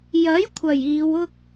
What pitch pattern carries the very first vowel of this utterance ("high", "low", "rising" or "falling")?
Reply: rising